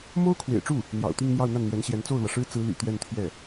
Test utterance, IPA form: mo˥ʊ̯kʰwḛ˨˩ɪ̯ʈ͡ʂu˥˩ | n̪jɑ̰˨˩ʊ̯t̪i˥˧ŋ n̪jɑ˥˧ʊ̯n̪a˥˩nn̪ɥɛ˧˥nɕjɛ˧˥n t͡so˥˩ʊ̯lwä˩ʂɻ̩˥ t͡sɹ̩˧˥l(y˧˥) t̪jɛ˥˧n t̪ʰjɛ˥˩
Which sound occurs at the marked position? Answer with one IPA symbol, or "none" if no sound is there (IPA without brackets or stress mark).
y̰˨˩